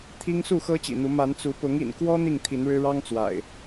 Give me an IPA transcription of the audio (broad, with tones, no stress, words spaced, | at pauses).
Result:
t̪ʰi˦ŋsu˥˨xɤ˦ t͡ɕḭ˨˩n̪u˨˦ ma˨˦nt͡su˨˦ pʊ˨˦ŋḭ˨˩nkwɔ˦ n̪i˥˨ŋt̪ʰi˨˦nɻɻ̩˦ ɻɑ˦ŋt͡swa̰˨˩ɪ̯